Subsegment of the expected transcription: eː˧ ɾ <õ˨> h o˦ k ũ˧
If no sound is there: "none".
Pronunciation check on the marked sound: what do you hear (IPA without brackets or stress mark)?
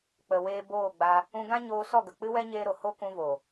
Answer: o˨